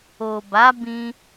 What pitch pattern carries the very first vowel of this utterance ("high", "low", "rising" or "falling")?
low